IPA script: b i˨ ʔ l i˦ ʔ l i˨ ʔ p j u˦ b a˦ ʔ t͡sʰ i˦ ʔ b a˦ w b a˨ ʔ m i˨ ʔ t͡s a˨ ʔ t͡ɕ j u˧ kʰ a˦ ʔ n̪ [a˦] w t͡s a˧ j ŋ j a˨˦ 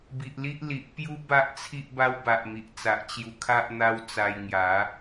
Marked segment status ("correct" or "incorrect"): correct